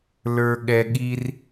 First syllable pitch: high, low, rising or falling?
high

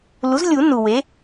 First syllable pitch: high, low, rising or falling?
rising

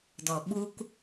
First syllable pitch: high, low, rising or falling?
low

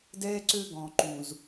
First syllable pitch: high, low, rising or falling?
high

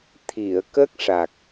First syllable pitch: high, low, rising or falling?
low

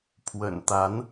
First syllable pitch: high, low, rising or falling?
low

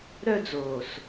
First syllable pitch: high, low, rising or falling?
high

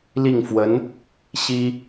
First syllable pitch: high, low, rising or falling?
falling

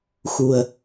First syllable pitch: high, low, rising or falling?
low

